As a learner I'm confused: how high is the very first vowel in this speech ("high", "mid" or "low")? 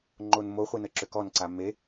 mid